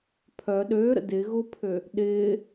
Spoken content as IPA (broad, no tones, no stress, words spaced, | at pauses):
pʰœ ɗøːɾə̰ dɪ ɣʊpʰø | ɗɪː